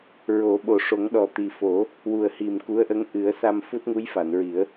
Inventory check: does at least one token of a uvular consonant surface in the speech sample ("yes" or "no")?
no